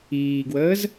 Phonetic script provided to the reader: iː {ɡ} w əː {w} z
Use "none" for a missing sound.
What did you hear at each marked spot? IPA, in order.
ɡ, none

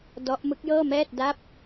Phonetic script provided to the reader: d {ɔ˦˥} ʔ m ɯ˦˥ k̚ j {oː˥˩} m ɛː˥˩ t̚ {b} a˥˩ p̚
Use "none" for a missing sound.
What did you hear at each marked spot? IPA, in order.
ɔ˦˥, ɤː˥˩, d

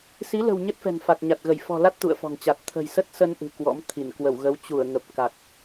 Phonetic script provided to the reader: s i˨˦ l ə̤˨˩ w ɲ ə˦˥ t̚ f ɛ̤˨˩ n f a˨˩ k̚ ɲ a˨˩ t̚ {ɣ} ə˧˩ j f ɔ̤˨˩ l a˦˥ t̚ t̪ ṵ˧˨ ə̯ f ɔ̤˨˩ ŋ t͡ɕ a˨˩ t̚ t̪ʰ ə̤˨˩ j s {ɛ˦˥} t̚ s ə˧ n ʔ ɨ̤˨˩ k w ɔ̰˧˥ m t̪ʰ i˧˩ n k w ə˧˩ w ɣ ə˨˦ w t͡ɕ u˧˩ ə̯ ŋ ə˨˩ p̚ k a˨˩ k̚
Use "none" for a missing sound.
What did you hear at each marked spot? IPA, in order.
ɣ, ə˦˥

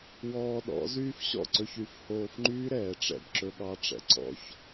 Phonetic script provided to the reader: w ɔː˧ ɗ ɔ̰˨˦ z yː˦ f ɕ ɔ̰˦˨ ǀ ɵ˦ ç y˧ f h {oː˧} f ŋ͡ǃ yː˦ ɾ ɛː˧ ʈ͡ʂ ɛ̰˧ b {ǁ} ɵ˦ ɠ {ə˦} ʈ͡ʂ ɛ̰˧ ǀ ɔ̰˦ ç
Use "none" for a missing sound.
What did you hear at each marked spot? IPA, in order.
oː˧, ǁ, ɑ˦

